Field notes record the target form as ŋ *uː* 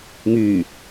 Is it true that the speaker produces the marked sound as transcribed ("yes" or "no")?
no